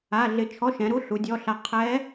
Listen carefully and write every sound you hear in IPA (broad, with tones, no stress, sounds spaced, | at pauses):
a˧˥˧ ɮ ɪ˧˥˧ t͡ʃʰ ɔ˧˥˧ ʃ ɛ̃˩˥ ɾ u˧˥˧ ɬ u˩˥ dʲ ɔ˧˥˧ ɬ a˧˥ qʰ ɛ˧˥